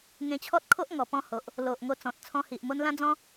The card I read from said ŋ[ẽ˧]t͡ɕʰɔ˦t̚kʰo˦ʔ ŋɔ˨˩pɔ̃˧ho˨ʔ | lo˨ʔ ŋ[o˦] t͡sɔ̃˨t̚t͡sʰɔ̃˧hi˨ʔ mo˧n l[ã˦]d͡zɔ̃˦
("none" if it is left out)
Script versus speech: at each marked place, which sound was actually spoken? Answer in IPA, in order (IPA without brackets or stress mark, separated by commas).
ẽ˧, o˧, ã˦